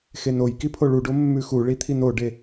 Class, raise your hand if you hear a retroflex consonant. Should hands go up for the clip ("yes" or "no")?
yes